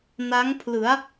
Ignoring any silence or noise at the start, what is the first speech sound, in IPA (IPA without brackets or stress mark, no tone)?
n